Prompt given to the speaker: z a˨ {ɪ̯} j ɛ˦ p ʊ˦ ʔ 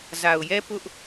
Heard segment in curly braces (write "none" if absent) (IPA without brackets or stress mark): ʊ̯